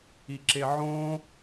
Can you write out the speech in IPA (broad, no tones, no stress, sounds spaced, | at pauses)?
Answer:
i ǁ e ʕ õ